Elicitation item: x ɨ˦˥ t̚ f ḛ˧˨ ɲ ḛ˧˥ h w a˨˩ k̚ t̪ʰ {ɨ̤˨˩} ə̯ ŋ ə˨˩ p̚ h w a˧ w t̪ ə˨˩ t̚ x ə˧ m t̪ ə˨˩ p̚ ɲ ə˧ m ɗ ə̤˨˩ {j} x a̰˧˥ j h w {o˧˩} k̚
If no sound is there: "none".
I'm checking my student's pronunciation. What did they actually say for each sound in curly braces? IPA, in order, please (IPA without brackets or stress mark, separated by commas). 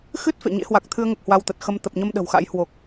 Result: ɨ˧, w, o˨˩